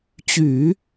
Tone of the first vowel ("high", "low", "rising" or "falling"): low